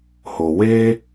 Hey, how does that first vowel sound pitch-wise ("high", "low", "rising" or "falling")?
low